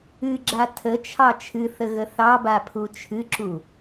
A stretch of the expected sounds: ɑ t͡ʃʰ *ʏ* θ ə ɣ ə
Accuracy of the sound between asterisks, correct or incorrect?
incorrect